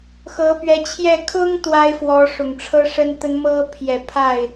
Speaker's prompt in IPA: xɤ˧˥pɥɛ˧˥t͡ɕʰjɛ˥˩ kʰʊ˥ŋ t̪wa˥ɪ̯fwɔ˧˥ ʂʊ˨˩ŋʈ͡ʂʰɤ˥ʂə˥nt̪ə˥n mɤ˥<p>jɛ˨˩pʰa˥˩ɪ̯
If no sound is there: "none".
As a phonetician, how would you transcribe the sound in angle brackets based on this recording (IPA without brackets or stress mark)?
pʰ